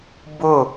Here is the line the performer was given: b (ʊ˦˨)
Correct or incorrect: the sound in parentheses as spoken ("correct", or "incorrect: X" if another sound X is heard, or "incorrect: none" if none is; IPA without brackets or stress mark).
correct